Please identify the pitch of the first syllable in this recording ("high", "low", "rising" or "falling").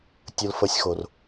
high